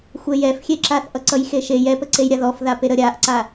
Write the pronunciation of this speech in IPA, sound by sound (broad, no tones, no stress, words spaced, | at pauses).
xʷɛjɛfxʲeǁaθ ʔʌǀʌjxeʃe jɛpəǀej ɾʲaðɔfðape ɾəɾʲaʔǀa